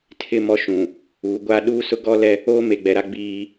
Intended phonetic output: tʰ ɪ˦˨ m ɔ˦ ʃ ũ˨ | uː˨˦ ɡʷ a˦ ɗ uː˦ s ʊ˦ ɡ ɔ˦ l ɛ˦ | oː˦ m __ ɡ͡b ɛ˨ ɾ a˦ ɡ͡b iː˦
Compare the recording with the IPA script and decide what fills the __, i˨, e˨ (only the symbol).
e˨